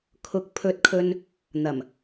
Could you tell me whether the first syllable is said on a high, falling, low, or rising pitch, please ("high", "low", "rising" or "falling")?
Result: rising